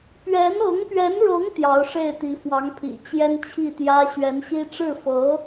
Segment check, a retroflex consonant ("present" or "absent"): present